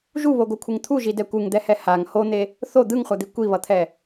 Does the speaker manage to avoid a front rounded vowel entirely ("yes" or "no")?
yes